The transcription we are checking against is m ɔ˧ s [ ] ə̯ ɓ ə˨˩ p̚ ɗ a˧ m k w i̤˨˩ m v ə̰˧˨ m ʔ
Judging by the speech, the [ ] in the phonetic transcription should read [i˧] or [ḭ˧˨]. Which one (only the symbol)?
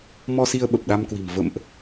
i˧